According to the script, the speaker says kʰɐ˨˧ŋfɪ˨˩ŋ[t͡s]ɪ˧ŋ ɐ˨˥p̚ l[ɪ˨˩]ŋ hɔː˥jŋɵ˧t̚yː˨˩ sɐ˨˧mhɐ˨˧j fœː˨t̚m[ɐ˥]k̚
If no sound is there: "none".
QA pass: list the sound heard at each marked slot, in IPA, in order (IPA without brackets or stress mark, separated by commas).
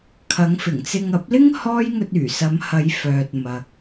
t͡s, ɪ˥, ɐ˨